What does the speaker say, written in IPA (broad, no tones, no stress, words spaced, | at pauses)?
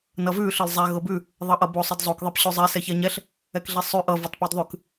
nʌvʉ ɬɤlzˤɛ ɣɤbʉ | ðˤʌʔʌbo sˤʌdzˤok ðˤɛpɕʉzˤi sɛçɛɲɛɬ | ɛkɮisˤʉ ʔʌ votˤpodðˤʉk